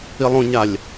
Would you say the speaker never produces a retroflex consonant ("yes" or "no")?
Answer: yes